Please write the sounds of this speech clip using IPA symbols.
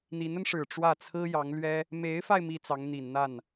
n̪i˧˥nə˧nʂɻ̩˨˩ ʈ͡ʂwä˥˩ t͡sʰɹ̩˥ jɑ˧˥ŋlɥɛ˥ | me˧˥ɪ̯fa˧ɪ̯ mi˥t͡sɑ˧˥ŋn̪i˨˩n n̪a˥˩n

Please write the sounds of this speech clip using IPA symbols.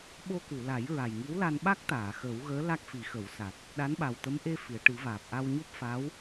ɓo˧ku˨˩˨ la˨˩˦jɹa˨˩jŋi˧˥w la˧nɓa˦˥k̚t̪aː˨˩˨ xəː˨˩˦wɣəː˧˥ la˦˥k̚fi˨˩˦xə˨˩˦wsa˨˩t̚ | ɗa˧˥nɓa˨˩wt̪ə˧˥m ʔe˧ fi˨˩˨ə̯ʈɨ˨˩˦vaː˨˩p̚ ʔa˧wɲo˦˥p̚fa˧˥w

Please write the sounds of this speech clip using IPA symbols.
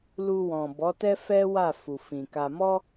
lu˧wɔ̃˨bɔ˨˦tɛ˦ fɛ˦ wa˦˨fu˨fĩ˨ka˧ mɔ˦

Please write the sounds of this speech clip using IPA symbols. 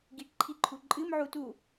ɡiʈǃʰiǃʰu ǃʼɨmʕu tu

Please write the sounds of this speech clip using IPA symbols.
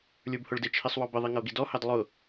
lʲə˞bhʊɭdɪt͡ʃʰisˤ wɔbɪðˤi ŋʌo̯ɡidɔhɑd lˠʊ

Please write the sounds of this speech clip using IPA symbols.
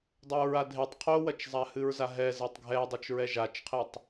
dˤoɹadʱetˤ qʰowɐt͡ʃzˤa hɨɹzaɦɛ zɛtˤɡʱɛdˤot͡ʃɹɛ ʒat͡ʃqʰetˤ

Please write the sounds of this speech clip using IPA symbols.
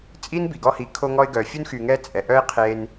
t͡sʼi˥nbi˩ɡɔ˦hi˨ kʰo˦ŋɔ˦ɪ̯ɡœ˨ fʲu˥nxy˨ŋɛ˦ t͡sʼɛ˩ʔœ˦ɪ̯ qʰe˦n

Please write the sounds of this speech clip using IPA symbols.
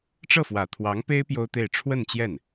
ʈ͡ʂɤ˥˩fwä˨˩t̪ʰwɑ˧˥ŋpe˥ɪ̯ pjo˥ʊ̯t̪e˥˧ɪ̯ ʈ͡ʂʰwə˥˧nt͡ɕjɛ˥˩n

